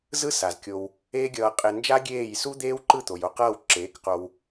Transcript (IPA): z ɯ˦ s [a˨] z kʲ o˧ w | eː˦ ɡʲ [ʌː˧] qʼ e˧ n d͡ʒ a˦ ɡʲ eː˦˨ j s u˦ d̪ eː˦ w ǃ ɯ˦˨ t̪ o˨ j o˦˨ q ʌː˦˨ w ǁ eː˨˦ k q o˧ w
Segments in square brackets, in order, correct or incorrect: correct, correct

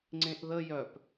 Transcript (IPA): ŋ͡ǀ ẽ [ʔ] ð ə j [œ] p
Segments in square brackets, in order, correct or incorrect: correct, correct

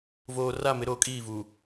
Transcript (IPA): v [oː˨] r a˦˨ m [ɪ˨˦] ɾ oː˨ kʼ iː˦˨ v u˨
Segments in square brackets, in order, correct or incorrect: correct, correct

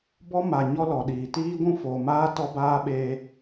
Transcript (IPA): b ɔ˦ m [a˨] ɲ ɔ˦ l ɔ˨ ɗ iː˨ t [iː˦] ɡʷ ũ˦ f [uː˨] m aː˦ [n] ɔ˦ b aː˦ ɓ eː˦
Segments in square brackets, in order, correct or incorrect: correct, correct, incorrect, incorrect

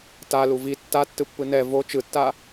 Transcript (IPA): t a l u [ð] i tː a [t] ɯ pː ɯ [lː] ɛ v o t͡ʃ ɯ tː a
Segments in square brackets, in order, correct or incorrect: incorrect, incorrect, incorrect

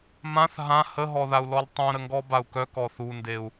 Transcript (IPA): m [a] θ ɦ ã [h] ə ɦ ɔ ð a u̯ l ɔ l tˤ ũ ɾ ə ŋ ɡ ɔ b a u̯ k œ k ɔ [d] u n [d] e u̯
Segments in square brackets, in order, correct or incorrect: incorrect, correct, incorrect, correct

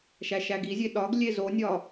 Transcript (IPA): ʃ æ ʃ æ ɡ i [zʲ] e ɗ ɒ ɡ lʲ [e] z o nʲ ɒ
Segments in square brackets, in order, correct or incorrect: correct, correct

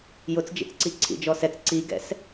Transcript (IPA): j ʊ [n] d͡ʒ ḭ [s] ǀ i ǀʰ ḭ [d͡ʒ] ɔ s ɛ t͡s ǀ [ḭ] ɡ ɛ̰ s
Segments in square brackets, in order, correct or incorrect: incorrect, incorrect, correct, incorrect

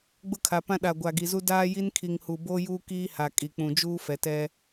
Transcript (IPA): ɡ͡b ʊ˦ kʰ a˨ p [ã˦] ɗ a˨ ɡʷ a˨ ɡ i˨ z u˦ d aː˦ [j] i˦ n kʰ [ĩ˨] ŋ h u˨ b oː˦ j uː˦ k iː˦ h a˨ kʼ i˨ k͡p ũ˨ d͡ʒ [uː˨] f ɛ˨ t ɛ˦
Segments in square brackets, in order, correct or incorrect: correct, correct, incorrect, incorrect

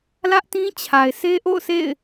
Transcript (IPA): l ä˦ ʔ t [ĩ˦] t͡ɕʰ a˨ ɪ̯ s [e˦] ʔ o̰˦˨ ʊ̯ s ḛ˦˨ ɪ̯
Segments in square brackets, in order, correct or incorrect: correct, correct

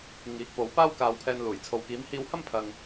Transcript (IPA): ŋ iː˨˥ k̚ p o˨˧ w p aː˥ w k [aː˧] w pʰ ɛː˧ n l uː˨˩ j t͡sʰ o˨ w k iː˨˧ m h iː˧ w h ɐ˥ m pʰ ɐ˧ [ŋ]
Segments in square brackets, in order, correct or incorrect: correct, correct

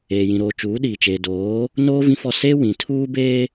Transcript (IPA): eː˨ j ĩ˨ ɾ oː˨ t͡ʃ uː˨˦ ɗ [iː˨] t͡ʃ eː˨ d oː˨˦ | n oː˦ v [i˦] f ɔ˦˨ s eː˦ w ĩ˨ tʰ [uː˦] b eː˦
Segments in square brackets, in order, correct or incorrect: correct, incorrect, correct

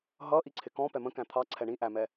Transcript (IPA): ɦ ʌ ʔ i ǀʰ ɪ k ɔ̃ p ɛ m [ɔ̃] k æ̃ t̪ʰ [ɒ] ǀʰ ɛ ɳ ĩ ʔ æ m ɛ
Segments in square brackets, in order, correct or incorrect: incorrect, incorrect

